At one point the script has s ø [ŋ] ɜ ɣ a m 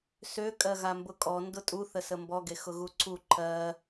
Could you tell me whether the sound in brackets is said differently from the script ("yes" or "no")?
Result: yes